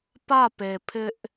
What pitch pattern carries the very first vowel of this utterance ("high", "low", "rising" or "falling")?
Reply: falling